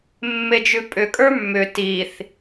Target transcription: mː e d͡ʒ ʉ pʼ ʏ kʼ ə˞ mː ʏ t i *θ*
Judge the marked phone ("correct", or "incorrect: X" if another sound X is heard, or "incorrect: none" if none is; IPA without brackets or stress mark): correct